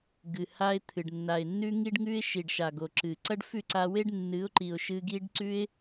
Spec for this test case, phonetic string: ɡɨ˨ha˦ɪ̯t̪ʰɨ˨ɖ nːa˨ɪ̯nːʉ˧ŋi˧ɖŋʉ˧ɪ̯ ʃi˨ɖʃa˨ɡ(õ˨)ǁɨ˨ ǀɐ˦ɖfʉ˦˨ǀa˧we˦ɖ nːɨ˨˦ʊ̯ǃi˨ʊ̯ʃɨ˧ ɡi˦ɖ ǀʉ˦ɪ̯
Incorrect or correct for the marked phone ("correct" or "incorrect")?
incorrect